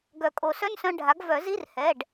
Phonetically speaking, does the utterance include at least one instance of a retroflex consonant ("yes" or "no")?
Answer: yes